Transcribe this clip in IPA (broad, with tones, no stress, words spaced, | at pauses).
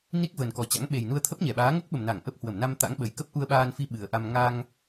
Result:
ni˦˥k̚vəː˨˩nkɔ˨˩ t͡ɕa̰˧˥ŋɓe˨˩jnu˧ə̯ t̪ʰə˦˥p̚ɲɛ˧˩ɓaː˨˦ ŋo˦˥k̚ɓə˨˩mna˧˩ŋ ʔə˦˥p̚ hwə˧˩mna˧mt̪a̰˧˥ŋ ɓə˨˩jkə˦˥p̚ ʔu˧ə̯ɓaː˧nfi˧ ɓɨ˨˩ə̯ʔa˧m ŋa˧ŋ